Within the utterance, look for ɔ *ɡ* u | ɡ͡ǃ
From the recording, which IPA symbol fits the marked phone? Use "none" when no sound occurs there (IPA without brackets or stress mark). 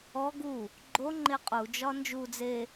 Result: ɡ